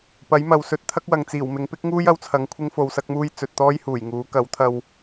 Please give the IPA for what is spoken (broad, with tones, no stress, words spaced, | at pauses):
pɐ˨˥jmɐ˨wsɵ˧t̚t̪ʰɐ˥k̚ wɐ˨ŋt͡siː˨˩wmɪ˨˧ŋ pɪ˥k̚ŋuː˥jɐ˧wt͡sʰɐ˨˧ŋ kʷʰɪ˥ŋfo˧wsɐ˥k̚muː˥j t͡sɵ˨t̚t̪ɔː˥jhuː˨˩jŋuː˨˥ kɐ˨˥wt̪ʰɐ˧w